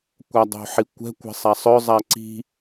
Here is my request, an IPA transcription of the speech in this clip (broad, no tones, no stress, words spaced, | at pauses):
kʷadˤo̤ħikʷɛ̤ kʷɛ̤sˤasˤœ zˤaǀi̤